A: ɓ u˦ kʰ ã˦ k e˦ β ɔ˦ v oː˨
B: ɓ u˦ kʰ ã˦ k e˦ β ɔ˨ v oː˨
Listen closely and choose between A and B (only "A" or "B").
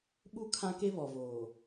B